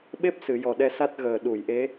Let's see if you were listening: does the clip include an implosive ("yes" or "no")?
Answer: yes